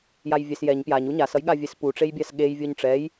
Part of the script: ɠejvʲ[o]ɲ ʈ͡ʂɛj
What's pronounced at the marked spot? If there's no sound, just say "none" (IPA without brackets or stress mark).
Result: o